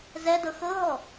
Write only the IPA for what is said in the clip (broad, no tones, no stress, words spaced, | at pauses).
zɛdɤ xɤɦɔ